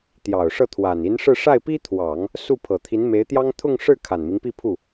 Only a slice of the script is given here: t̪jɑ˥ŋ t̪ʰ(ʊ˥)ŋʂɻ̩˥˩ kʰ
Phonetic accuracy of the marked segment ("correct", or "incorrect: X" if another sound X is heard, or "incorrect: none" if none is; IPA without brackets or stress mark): incorrect: ʊ˥˧